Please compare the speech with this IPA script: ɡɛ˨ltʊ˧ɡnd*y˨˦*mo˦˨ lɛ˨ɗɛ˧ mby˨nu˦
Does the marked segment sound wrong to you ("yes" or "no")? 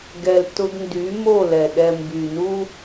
no